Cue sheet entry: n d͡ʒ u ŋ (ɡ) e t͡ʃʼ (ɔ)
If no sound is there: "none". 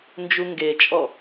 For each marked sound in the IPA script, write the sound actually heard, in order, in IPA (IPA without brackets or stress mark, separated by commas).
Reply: ɡ, ɔ